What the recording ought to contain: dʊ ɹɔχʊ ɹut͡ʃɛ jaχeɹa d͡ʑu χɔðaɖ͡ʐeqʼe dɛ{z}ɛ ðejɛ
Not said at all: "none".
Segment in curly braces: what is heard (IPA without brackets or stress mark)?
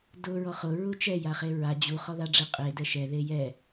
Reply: ʃ